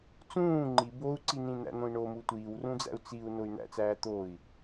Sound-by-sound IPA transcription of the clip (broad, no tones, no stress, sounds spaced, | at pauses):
t͡s ũː ŋ͡ǃ i b o u̯ ǀ i n ĩ n̪ æ̰ n̪ õ i̯ ɳ o m u tʷ iː w r ũ d͡z æ̰ u̯ t͡s i u̯ n o y̯ n̪ æ̰ t͡s æː t̪ o i̯